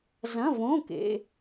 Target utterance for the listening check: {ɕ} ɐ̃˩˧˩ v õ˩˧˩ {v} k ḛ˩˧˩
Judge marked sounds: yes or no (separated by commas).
no, no